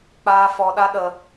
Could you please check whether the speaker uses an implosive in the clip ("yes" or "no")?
yes